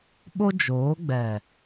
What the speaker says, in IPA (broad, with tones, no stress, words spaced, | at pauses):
ɓo˦d͡ʒoː˨˦ɡ͡bɛ˨